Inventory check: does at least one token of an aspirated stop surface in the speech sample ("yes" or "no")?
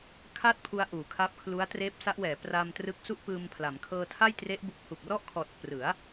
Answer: yes